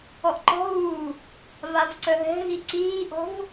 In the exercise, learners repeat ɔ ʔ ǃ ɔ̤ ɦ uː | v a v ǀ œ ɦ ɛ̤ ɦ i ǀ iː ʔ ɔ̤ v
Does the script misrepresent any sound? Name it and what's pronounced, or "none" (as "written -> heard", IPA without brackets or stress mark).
none